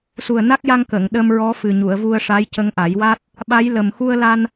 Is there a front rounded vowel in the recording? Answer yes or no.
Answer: no